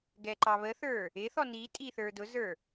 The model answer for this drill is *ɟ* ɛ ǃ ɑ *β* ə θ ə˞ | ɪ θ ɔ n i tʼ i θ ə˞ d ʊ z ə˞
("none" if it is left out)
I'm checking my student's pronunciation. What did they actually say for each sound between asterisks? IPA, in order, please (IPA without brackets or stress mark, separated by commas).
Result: ɡ, β